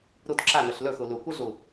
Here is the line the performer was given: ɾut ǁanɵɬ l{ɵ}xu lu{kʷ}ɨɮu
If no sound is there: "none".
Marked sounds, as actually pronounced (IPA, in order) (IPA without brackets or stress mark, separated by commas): ɵ, kʷ